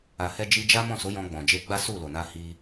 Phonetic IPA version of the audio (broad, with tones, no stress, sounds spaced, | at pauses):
a˨ h ɛ˧ d͡ʒ i˧ d͡ʒ a˦ m ɔ̃˦˨ s o˨˦ j ɔ̃˧ ɡ͡b ɔ̃˨ d͡ʒ e˧ ɡ͡b a˦ s u˦˨ l o˨ n a˧ h i˧